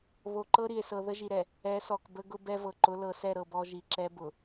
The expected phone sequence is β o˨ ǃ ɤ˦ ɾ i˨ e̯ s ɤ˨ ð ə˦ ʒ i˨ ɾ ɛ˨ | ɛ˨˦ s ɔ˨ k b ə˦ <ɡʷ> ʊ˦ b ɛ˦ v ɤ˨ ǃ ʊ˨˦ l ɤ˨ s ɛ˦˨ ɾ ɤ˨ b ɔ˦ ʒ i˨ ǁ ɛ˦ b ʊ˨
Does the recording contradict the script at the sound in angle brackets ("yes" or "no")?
yes